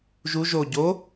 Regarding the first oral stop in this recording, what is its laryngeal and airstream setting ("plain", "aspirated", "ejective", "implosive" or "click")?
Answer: plain